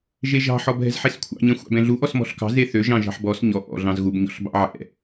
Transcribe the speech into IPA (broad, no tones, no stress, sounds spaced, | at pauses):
ʒ e ʒ ɑ̤ ħ ɔ b ɦ ɛ̤ z ħ e s kʷʰ ɑ̰ ɲ ɛ̃ xʷ ɑ̰ b ɛ̃ ɮ u ʔ ɔ s m ɔ̤ ɬ k ɑ̤ z e θ ø ʒ ɑ̃ ʒ ɑ̤ ħ b ɔ s ɲ ɔ ʔ ɔ̰ ɮ ɑ̃ z ɣ u b ɲ ɔ̰ ɬ b ɑ̰ ʕ ɛ̰